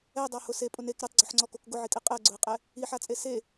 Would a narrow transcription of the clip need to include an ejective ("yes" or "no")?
yes